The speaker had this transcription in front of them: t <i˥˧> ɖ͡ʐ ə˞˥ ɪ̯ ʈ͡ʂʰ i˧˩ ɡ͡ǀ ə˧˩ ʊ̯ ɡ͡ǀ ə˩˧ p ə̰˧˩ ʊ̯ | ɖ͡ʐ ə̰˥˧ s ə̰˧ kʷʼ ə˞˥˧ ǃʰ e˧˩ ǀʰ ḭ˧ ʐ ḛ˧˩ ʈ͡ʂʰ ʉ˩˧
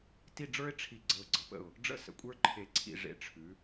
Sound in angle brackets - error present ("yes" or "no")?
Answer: no